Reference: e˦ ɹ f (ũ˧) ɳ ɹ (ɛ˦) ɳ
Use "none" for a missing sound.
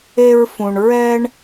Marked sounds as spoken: ũ˧, ɛ˦

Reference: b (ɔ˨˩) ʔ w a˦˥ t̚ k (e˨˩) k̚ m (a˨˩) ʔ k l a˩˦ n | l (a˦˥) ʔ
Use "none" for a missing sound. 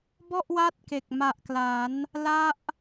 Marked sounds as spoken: ɔ˥˩, e˨˩, a˨˩, a˦˥

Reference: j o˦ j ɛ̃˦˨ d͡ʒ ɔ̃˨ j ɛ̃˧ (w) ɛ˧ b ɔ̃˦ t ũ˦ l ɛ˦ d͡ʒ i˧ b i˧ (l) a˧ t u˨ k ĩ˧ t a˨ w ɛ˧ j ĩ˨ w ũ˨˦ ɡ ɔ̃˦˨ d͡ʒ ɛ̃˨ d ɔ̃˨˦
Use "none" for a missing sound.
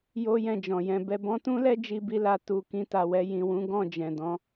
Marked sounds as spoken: b, l

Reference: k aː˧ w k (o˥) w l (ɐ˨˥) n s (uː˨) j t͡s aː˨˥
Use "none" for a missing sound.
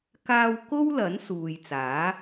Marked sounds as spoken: o˥, ɐ˨˥, uː˨

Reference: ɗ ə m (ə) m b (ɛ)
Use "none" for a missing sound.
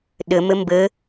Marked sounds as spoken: ə, ə

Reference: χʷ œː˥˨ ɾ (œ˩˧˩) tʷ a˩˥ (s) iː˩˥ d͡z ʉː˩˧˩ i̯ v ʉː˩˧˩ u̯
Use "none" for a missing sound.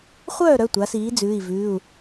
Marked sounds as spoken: œ˩˧˩, s

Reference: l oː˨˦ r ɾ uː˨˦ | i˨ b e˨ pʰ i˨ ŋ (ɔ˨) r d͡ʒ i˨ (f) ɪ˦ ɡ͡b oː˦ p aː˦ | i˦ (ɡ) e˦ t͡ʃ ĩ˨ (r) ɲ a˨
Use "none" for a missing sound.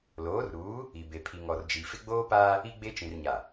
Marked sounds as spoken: ɔ˨, f, ɡ͡b, r

